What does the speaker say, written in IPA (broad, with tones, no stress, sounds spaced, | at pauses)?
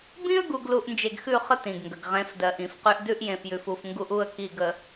b ĩ˦ ə̯ ɡ u˨ ɡ l u˨ ʔ n d͡ʒ e˨ ɡ x ʉ˦˨ χ ə˦ t ĩ˨ ɡ ŋ ɡ ə˨ ɡ ʁ ẽ˨˦ f d ɜ˨ ʔ ĩ˨ f q ʉ˦ ʔ d ʉ˦ ʔ j ẽ˨ f j ʉ˨ f u˨ f ŋ ɡ u˦ ʔ u˦˨ ə̯ k i˦˨ ɡ ə˨